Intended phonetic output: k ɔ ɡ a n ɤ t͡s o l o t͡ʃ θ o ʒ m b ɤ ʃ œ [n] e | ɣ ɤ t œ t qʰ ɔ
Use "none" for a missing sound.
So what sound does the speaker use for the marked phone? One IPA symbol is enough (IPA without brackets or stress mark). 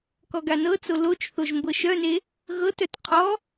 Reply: n